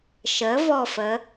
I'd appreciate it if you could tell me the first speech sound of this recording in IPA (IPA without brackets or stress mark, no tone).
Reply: ʃ